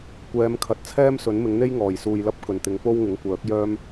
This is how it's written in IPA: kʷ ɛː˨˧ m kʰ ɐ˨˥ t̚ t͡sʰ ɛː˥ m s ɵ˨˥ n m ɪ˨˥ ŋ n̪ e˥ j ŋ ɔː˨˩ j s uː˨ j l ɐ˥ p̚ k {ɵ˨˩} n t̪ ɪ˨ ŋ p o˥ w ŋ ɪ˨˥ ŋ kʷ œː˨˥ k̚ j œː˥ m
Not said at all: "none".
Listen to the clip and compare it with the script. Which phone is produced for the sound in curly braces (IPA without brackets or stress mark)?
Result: ɵ˨˩